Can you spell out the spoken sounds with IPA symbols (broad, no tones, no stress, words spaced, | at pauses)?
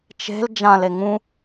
t͡ʃe̤l d͡ʒãle ŋũ